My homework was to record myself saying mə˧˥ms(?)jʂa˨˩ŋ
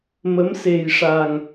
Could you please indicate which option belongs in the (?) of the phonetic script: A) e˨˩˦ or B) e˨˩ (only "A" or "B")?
B